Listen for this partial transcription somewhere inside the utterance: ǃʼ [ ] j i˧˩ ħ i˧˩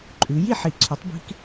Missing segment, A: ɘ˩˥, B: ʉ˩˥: B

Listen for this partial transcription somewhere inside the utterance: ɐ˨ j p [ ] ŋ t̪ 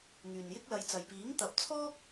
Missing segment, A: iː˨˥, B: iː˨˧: A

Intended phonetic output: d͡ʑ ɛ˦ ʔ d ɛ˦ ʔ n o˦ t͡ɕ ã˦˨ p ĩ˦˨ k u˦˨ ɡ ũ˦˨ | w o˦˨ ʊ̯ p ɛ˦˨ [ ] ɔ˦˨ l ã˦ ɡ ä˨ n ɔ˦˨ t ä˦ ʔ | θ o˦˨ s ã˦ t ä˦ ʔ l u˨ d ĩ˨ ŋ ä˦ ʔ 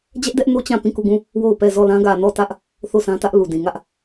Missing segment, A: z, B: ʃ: A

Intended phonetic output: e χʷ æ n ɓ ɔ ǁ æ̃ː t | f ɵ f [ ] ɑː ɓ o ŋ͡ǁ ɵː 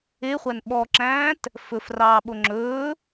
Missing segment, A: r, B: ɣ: A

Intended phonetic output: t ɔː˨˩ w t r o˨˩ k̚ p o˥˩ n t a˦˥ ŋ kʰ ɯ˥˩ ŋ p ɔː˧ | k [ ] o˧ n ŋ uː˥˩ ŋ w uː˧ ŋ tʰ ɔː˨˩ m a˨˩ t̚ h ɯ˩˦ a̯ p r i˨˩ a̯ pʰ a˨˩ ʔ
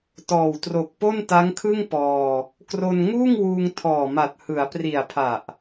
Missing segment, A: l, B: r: B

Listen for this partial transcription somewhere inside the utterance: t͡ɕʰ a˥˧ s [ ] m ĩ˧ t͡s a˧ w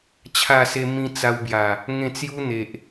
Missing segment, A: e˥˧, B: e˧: B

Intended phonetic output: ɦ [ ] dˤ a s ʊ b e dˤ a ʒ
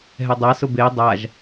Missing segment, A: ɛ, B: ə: A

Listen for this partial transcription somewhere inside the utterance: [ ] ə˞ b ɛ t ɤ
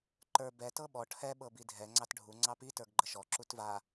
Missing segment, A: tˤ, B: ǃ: B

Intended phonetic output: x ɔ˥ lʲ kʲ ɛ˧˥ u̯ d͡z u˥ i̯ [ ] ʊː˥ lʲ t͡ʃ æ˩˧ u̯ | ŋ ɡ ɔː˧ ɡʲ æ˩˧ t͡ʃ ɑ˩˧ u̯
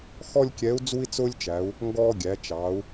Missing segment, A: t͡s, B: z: A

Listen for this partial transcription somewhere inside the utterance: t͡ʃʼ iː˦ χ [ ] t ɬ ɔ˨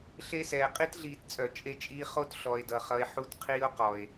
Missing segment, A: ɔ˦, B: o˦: B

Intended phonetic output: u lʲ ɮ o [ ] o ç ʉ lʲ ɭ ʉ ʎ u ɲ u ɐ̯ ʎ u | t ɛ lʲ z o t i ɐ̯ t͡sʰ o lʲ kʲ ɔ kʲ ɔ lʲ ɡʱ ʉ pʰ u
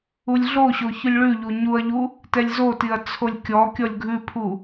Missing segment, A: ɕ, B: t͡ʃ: A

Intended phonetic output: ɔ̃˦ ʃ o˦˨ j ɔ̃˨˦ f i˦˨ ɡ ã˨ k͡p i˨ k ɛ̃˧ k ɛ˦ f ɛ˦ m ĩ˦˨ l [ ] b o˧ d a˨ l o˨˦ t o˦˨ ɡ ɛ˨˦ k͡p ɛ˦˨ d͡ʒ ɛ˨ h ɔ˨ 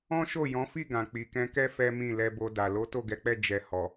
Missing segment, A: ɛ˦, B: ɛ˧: B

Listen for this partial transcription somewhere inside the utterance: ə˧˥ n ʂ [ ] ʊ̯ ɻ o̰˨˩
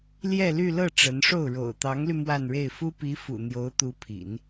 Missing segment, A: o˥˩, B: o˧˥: A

